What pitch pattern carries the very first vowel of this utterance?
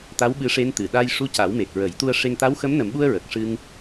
rising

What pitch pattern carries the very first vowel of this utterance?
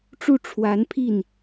falling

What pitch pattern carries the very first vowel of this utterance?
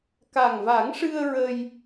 low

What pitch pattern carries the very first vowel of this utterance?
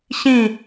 falling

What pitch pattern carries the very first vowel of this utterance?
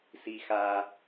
low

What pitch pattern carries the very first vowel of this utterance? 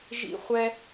high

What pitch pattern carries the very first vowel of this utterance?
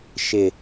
low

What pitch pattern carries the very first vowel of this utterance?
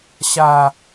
high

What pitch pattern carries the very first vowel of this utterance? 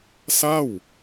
falling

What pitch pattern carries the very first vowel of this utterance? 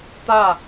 falling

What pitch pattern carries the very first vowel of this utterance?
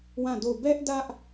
falling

